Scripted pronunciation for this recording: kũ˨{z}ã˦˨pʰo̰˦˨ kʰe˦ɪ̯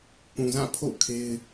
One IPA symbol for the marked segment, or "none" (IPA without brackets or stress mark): z